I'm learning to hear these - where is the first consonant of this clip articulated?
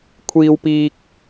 velum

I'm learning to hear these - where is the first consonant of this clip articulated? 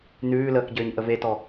tongue tip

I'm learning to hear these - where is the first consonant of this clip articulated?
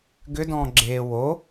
velum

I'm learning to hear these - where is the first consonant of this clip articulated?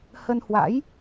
throat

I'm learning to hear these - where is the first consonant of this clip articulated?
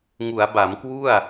velum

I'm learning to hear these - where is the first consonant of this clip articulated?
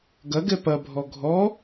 velum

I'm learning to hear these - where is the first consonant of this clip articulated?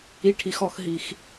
retroflex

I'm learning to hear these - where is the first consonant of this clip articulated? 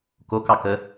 velum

